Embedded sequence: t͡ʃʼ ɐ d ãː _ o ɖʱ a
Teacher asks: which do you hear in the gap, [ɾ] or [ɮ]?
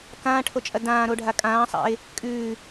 ɾ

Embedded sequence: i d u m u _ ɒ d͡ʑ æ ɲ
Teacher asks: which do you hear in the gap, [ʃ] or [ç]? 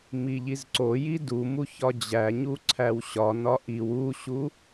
ç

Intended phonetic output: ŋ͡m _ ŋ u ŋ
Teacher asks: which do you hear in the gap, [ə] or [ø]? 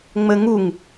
ə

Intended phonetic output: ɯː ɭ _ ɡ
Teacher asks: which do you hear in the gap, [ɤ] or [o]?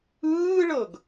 ɤ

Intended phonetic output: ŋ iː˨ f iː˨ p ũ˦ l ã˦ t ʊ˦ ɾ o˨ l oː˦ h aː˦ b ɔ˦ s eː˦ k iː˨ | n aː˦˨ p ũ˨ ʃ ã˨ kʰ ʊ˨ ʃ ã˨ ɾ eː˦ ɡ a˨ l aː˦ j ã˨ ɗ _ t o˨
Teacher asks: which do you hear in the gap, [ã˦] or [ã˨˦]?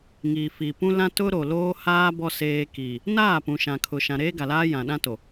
ã˦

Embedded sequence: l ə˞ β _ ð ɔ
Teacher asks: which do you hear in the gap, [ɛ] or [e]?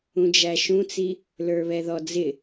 ɛ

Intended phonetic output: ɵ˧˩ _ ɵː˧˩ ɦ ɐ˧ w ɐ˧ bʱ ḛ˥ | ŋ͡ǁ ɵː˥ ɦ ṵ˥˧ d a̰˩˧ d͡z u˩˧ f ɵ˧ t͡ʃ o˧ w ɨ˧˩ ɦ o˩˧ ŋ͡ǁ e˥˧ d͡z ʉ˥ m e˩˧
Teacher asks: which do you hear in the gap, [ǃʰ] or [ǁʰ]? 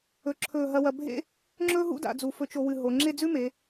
ǁʰ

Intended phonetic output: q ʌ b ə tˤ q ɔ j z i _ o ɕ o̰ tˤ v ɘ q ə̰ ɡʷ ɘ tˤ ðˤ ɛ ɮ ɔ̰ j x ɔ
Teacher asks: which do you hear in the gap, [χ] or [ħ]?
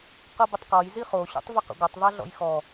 χ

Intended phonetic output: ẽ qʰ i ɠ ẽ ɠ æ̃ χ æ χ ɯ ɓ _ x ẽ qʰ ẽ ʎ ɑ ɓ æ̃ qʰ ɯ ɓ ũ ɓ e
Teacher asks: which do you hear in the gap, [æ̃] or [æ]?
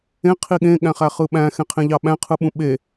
æ̃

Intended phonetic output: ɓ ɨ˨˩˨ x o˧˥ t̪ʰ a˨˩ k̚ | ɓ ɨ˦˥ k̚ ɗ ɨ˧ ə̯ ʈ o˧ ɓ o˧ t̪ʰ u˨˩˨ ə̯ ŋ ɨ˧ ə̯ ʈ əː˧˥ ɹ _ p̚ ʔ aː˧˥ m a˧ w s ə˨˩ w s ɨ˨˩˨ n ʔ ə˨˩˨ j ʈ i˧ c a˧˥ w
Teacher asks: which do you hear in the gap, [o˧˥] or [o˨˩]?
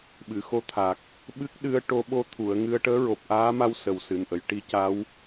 o˨˩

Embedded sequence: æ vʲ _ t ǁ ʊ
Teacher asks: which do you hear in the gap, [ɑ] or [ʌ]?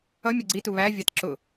ɑ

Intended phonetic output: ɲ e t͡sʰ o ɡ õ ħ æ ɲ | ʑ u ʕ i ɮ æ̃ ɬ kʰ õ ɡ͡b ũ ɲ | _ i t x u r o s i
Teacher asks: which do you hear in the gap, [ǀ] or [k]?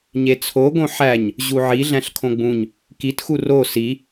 k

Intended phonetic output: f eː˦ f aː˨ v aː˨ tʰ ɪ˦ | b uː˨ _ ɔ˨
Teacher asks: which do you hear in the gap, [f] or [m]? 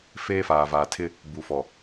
f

